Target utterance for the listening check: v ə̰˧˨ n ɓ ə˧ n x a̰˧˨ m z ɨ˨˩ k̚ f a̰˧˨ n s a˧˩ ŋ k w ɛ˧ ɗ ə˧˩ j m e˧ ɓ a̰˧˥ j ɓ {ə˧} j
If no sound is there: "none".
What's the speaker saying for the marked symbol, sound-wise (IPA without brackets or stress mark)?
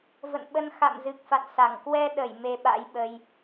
ə˧